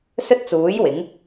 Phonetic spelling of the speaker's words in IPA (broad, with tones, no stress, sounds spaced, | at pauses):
s ɵ˥ t̚ t͡s uː˨˥ j w ɪ˨˥ ŋ